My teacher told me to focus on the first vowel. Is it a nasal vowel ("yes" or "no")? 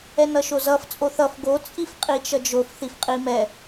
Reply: no